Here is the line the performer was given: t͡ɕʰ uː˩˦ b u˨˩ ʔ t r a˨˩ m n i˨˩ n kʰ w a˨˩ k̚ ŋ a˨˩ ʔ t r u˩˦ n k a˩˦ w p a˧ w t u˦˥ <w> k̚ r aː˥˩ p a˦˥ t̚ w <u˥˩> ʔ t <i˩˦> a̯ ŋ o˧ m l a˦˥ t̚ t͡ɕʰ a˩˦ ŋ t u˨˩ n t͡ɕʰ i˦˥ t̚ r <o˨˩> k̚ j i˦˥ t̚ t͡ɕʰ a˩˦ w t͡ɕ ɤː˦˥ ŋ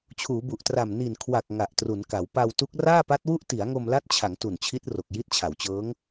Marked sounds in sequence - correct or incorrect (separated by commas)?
incorrect, correct, correct, correct